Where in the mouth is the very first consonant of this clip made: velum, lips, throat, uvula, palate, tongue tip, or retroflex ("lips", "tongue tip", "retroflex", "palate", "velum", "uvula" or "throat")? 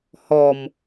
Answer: throat